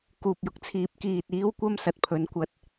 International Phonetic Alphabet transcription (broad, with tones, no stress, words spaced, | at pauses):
kuː˨p̚jʊ˨k̚t͡sʰiː˨p̚ kiː˨t̚iː˨˧w kʷɐ˥m sɐ˨t̚pʰɵ˨˧nkʷɐ˧t̚